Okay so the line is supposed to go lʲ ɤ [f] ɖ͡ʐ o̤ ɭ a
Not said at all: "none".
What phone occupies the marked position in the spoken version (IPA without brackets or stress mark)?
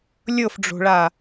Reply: f